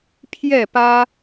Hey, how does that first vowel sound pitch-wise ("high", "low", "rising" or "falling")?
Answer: falling